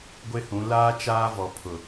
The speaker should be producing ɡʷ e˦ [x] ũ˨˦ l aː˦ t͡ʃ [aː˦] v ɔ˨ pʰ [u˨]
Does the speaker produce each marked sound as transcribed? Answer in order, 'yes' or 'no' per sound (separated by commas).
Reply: no, yes, no